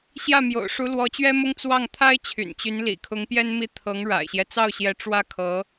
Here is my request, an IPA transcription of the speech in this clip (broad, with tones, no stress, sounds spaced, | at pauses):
ɕ j ä˥˩ m j o̰˨˩ ʊ̯ ʂ u˧˥ l w ɔ˧˥ t͡ɕ ɥ ɛ˥ m ʊ˥ ŋ t͡s w ɑ˥˩ ŋ t̪ʰ a˥ ɪ̯ t͡ɕʰ y̰˨˩ n t͡ɕ y˧˥ n l ḭ˨˩ kʰ ʊ˧˥ ŋ p j ɛ˥ n m i˥˩ t̪ʰ ɤ˧˥ ŋ ɻ a̰˨˩ ɪ̯ ɕ j ɛ˦ t͡s ɑ˥˩ ʊ̯ ɕ j ɛ˧˥ ʈ͡ʂ w ä˥ kʰ ɤ˧˥